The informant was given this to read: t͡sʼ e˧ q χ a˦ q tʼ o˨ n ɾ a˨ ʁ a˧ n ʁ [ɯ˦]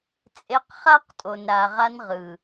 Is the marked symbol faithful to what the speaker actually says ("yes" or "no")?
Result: no